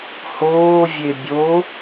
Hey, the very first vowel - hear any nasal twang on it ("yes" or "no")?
no